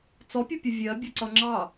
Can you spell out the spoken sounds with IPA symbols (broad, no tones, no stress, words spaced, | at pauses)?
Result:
t͡sɔpʲʊpʲə vʲɜbʲʌǀʌ ŋ͡ǁɑ